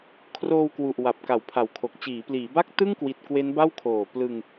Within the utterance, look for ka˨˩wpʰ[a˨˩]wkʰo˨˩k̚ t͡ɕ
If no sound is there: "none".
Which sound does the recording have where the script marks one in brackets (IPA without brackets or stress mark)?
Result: a˩˦